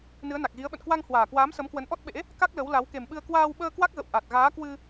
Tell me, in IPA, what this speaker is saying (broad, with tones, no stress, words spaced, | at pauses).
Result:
nɨ˨˦ə̯na˨˩k̚ɣi˨˦ə̯ ɓə̰˧˨nkwa˧ŋhwaː˨˩kwaː˨˦m sə˨˦mkwə˨˦nʔɔ˦˥t̚ɓḛ˧˥ | ka˦˥k̚lə˨˦wla˨˦w ke˨˩mɓɨ˧ə̯ kwaː˧wɓəː˧ kwa˦˥k̚ɣə̰˧˨w ʔa˨˩t̚ɣaː˨˦kwɨ˧